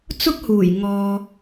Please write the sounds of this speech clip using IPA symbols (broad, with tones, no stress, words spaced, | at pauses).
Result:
t͡sʊ˥k̚huː˨˩j ŋɔː˨